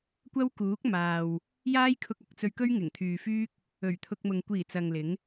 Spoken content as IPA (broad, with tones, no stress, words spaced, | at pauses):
kʷɐ˥wkuː˨˥k̚ maː˨w | jaː˥jkʰʊ˧k̚ɐ˨k̚t͡sɵ˧ɥ kɵ˥ɥŋɪ˨˩ŋt̪ʰyː˨fyː˥k̚ | ɵ˨˩ɥ t̪ʰʊ˧k̚mʊ˨ŋ kʷiː˨˩ t͡sɐ˨ŋlɪ˨˥ŋ